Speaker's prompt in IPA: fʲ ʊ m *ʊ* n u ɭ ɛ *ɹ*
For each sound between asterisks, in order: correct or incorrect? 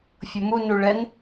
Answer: incorrect, incorrect

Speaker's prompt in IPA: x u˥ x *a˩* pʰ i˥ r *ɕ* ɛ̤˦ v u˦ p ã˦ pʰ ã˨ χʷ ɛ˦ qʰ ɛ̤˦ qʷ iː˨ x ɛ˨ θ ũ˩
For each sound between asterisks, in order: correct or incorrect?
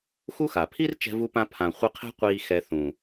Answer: correct, incorrect

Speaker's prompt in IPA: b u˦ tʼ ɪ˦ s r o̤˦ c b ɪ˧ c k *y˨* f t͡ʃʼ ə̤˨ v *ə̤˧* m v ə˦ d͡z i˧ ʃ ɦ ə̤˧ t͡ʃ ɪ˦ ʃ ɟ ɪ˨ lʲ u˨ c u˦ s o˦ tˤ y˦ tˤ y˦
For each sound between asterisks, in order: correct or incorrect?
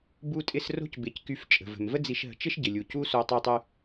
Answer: incorrect, incorrect

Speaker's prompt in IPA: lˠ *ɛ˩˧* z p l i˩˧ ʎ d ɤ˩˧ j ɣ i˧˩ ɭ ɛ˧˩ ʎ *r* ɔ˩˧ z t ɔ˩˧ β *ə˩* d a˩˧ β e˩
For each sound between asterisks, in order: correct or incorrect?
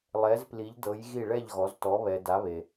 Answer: correct, incorrect, incorrect

